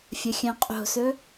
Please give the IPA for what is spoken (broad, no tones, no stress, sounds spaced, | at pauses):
fʲ ə xʲ œ̃ qʼ o̤ s ɵ